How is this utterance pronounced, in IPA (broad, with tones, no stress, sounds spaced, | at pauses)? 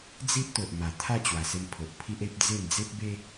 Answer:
d͡z i˦ ʔ t̪ o˨ ʔ m a˨˩ t̪ʰ a˥˧ t͡ɕ w a˨˩ s e˧ m pʰ o˨ ʔ pʰ i˦ ʔ e˦ p̚ d͡z e˥˧ m d͡z e˦ p̚ b e˦